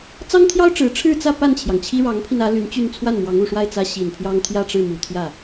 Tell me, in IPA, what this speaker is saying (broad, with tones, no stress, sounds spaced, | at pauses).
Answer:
t͡s ɑ˥ ŋ t̪ʰ j ɑ˥ ʊ̯ ʈ͡ʂ ɻ̩˧˥ ʈ͡ʂʰ ɻ̩˥˧ t͡s ä˥˧ p a˥˩ n t͡ɕʰ j ɑ˩ ŋ t͡ɕʰ i˥ ɻ ɑ˧˥ ŋ pʰ i˧ n ä˧˥ l y˧˥ n t͡ɕ y˥˧ n t͡sʰ w a˥˩ n m w ɑ˧˥ ŋ u˨˩ ʂ w a˥˩ ɪ̯ t͡s ä˥ ɕ i˨˩ n pʰ j ɑ˥ ŋ t̪ʰ j ä˥˧ ʈ͡ʂ ɻ̩˥˩ m u˨˩ t̪ʰ j ä˥˩